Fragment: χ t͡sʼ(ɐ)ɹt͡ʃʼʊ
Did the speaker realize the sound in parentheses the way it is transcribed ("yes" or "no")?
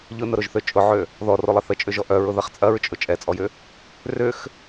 yes